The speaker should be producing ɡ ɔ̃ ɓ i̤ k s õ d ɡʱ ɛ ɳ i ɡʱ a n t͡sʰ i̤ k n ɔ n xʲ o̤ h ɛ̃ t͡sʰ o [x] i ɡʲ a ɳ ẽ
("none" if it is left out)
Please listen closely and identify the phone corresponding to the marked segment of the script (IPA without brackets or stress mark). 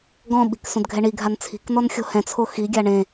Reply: x